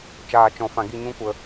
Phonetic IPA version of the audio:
t͡ʃ aː˨ t͡ʃ ɔ̃˨ f ã˨ ɡ i˦˨ ɲ ũ˦ kʷ ə˧

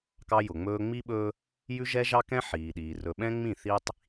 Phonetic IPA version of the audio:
k ɑ˦ j ʊ˨ ŋ͡m ɵː˦ ŋ͡m i˦ ɓ ɵː˦ | j ʉ˦ ʒ ɛ˦ ʒ ɑ˦ k ɛ̃˦ ħ iː˨ ɗ iː˨ r ɵ˨ ɓ ɛ̃˦ ŋ͡m ĩ˦˨ θ iː˦ tˤ

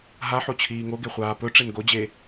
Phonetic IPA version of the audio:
ɦ a ħ o t͡ɕʰ iː ŋ o ɡ e χʷ aː p ɵ ʈ͡ʂ e n ɡ o d͡ʑ e

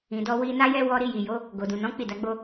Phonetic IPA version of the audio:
ĩ˧ d ɔ˦ w i˦ n a˦ j ɛ˦ w ɔ˧ ɾ i˧ j i˨ j o˨˦ | ɡ o˨ d ũ˨ n ɔ̃˨˦ k͡p i˦˨ d a˨˦ ɡ͡b o˦

